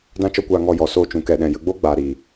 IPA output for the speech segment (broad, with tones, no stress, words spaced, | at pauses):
dã˦t͡ʃɔ˦kʷaː˧ ŋɔ˧ jɔ˨ soː˧t͡ʃũ˨ kɛ˨ɗɛ̃˨ jə˧ɡ͡bo˦ɡ͡baː˨ ɾiː˨